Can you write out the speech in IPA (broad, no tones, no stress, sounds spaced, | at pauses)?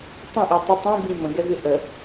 tˤ ə̃ ʔ i tˤ ɪ tˤ ĩ b ĩ m ə̃ ɡ ɛ v ɪ ʔ ə